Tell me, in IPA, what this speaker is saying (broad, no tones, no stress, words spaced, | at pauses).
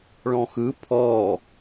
ɭɔ̃xɯ pʰɔ